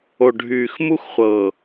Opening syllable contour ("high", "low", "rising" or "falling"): low